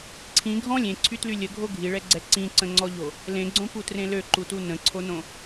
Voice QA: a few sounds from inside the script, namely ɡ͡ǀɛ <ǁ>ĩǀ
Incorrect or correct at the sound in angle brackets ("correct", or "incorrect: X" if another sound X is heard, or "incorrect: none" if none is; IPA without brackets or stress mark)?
incorrect: ǀ